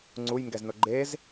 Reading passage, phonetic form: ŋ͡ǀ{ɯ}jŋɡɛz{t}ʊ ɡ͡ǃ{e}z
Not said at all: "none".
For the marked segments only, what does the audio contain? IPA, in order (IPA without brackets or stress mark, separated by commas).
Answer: u, n, e